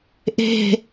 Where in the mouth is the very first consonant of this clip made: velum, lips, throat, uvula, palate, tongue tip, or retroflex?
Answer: throat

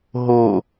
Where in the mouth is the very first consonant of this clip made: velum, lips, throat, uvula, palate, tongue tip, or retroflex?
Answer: throat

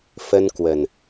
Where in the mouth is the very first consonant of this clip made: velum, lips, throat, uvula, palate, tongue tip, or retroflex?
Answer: lips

